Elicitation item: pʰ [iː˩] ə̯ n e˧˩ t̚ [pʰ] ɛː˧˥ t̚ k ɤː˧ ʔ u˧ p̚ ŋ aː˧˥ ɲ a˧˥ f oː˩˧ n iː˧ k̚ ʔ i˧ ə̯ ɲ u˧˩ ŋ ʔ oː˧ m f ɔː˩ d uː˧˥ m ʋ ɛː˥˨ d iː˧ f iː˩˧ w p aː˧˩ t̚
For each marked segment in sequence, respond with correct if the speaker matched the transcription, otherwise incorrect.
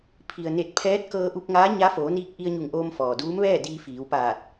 incorrect: i˩, correct

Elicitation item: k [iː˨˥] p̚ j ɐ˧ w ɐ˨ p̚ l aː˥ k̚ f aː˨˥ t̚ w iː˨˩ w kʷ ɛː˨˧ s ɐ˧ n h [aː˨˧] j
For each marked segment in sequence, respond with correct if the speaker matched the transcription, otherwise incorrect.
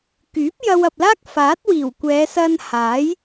incorrect: yː˨˥, incorrect: aː˨˥

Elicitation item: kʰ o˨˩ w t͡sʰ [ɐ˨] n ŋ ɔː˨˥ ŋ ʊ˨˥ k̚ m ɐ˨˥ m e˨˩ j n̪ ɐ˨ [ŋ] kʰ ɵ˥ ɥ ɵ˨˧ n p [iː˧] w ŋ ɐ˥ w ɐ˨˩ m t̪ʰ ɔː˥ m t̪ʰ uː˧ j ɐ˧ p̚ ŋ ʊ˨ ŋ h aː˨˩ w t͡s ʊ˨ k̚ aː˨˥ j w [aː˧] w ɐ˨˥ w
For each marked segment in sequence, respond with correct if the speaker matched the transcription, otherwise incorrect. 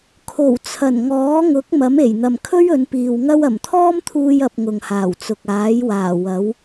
incorrect: ɐ˨˩, incorrect: m, incorrect: iː˨, incorrect: aː˨˩

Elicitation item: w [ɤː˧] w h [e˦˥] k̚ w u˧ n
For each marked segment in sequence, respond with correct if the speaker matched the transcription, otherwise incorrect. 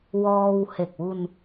incorrect: ɔː˧, incorrect: e˨˩

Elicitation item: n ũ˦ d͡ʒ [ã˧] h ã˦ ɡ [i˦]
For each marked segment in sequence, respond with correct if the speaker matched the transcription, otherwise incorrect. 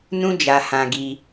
incorrect: a˧, correct

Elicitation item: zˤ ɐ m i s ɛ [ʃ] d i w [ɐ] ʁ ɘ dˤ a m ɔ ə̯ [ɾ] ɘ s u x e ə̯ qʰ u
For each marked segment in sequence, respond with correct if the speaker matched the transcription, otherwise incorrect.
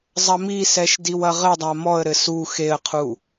correct, correct, correct

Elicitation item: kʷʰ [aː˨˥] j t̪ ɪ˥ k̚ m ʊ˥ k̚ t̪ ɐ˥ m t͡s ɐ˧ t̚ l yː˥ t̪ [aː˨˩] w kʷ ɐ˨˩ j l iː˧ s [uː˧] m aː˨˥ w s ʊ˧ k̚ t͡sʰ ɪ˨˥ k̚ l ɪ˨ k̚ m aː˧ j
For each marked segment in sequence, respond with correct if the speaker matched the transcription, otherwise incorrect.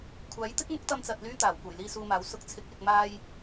correct, correct, correct

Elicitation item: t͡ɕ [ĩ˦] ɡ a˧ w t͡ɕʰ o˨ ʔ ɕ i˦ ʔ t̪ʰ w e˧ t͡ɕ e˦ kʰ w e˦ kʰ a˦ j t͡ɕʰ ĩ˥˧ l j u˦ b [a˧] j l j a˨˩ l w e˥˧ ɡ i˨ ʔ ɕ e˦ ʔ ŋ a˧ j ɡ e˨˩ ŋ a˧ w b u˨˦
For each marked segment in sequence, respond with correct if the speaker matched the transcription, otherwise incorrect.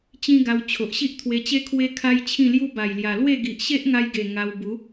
correct, incorrect: a˨˩

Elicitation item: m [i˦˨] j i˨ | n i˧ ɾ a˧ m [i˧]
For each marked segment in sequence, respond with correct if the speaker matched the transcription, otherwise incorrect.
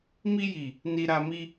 incorrect: i˧, incorrect: i˦

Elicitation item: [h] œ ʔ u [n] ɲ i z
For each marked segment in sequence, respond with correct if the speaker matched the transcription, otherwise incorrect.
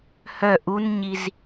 correct, correct

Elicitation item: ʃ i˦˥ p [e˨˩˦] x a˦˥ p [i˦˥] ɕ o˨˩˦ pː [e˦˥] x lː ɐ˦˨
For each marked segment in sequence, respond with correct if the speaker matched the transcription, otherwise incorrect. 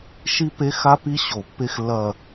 incorrect: e˧˥˧, correct, correct

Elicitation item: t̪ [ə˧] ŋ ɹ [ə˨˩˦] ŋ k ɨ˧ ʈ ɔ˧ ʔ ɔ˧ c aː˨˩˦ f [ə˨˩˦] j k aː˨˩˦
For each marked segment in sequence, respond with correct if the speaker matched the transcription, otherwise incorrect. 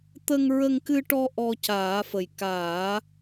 correct, incorrect: ə˧, incorrect: ə˨˩

